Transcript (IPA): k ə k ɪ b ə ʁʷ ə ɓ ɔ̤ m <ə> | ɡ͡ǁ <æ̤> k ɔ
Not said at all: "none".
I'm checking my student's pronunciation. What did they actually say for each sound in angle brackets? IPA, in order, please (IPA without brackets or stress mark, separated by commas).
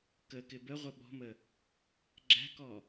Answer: ə, æ̤